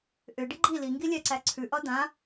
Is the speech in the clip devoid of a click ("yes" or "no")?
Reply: no